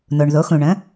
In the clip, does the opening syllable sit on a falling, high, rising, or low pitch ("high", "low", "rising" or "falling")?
low